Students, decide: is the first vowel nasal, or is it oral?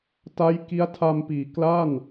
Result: oral